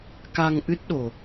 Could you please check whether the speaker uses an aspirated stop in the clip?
no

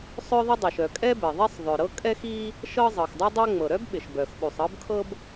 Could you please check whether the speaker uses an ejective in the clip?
yes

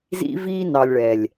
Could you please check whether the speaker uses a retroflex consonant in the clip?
yes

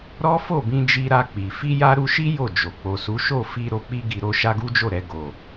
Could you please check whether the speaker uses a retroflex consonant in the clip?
no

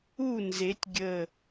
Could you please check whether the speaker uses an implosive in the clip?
no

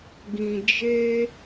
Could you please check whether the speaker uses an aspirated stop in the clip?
no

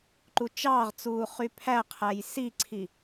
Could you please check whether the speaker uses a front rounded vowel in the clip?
yes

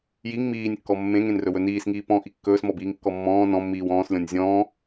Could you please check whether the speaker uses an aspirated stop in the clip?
no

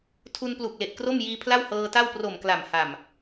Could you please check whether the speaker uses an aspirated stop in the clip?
yes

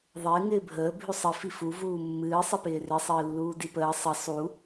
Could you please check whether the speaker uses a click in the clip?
no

